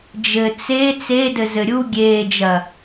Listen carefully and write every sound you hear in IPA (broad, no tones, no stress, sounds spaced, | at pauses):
d͡ʒ ɘ t͡s e t͡s e d ɘ z ɘ ɾʲ u ɡʲ eː d͡ʒ ɐ